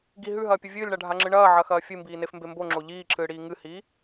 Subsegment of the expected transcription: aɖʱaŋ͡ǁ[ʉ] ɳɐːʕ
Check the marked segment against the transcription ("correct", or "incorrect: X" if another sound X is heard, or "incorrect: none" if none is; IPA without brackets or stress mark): incorrect: ɨ